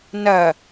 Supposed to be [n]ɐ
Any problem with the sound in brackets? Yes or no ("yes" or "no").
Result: no